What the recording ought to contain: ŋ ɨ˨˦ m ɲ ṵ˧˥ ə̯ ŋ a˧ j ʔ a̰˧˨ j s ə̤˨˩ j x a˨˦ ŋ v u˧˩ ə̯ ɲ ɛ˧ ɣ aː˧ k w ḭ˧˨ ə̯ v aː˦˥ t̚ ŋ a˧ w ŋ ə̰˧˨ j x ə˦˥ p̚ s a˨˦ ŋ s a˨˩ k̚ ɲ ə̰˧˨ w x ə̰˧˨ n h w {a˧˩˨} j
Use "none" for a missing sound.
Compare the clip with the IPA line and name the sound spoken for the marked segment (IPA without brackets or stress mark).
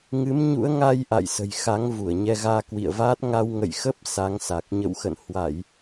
a˧˩˨